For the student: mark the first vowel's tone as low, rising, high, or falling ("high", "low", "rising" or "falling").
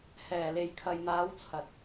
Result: low